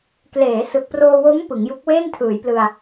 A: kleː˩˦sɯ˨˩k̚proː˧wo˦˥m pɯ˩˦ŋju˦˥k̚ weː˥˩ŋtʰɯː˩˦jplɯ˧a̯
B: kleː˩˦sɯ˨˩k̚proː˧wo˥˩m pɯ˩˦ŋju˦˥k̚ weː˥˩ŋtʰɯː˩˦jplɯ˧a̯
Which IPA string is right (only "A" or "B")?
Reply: A